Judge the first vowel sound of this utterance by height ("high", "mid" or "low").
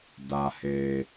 low